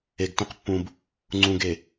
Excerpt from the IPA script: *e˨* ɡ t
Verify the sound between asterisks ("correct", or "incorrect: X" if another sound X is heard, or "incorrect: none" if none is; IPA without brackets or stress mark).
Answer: correct